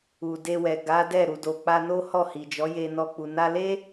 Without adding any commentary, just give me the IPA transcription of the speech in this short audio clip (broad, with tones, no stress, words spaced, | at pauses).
u˨de˧wɛ˨ ɡa˨˦dɛ˦˨ ɾu˨do˨k͡pa˧no˦ hɔ˦˨hi˨d͡ʒɔ˨˦je˧ nɔ˧k͡pu˨ na˧le˦